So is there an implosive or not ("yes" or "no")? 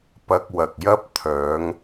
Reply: no